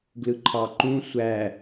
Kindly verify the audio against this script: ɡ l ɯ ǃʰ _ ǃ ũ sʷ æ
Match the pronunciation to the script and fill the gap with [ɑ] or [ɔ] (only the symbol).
ɑ